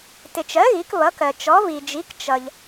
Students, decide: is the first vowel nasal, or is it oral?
oral